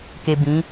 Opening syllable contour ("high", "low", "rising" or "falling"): low